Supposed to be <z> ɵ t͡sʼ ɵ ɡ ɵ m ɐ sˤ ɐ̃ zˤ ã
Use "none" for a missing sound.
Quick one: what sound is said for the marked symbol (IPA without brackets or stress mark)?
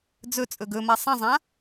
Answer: d͡z